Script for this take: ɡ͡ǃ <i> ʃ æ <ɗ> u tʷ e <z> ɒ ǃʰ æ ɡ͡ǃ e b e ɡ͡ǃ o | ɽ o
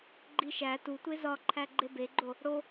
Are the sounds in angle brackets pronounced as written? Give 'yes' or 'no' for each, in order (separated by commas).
yes, no, yes